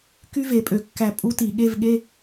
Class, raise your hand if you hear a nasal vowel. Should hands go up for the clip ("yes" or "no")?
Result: no